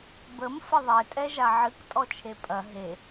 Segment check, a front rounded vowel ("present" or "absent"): absent